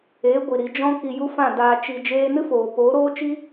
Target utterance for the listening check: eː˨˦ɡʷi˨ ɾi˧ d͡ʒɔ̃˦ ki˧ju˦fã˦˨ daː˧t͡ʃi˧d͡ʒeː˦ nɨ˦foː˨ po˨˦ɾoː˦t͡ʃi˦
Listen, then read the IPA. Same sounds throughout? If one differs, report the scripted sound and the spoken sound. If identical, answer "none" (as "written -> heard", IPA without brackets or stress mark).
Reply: none